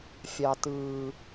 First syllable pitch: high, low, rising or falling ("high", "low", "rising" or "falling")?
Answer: high